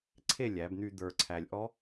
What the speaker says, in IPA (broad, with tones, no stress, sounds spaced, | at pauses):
ǀʰ e˥˨ lʲ æ˩˧ b n̪ y˧ d̪ ə˞˨˩ ǀʰ æ˨˩ lʲ ʔ ɔ˦˥